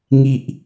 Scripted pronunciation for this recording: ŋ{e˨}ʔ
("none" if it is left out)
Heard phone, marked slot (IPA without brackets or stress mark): i˨